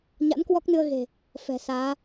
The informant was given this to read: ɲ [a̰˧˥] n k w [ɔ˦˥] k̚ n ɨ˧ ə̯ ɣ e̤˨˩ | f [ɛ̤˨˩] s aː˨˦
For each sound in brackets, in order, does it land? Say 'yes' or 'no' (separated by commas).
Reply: yes, yes, yes